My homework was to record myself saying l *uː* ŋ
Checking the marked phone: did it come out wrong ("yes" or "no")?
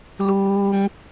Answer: no